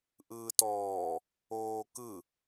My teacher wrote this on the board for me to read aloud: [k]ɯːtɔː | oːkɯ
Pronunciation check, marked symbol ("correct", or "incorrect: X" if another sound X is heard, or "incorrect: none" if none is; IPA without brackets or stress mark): incorrect: ʔ